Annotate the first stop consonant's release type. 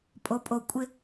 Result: ejective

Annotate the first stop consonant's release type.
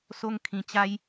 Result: aspirated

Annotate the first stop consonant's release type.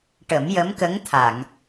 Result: plain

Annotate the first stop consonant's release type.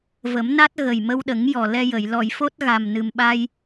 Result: plain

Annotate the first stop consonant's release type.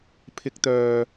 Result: aspirated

